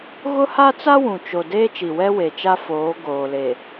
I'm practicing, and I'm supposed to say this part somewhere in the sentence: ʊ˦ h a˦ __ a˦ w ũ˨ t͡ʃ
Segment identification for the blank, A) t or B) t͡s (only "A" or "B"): B